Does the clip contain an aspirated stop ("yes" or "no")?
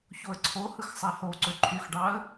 yes